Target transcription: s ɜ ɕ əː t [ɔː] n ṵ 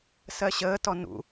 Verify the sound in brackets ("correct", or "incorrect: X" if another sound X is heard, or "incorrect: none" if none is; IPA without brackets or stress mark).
incorrect: ɔ